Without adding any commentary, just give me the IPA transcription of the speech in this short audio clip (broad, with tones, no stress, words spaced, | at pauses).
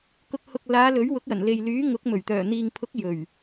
kʊ˧k̚ hʊ˨k̚laː˨˧ lɵ˨˥ɥwʊ˨˥k̚jɐ˨˩n le˨jlyː˨˥ ŋʊ˨˥k̚ mɵ˨˩ɥt̪œː˨˩ n̪iː˨ŋpʰʊ˨˥k̚ jɵ˨˩ɥ